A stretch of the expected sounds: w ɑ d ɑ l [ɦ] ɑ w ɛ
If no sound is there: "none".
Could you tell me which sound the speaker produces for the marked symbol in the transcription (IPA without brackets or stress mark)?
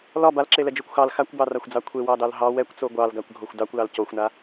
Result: ɦ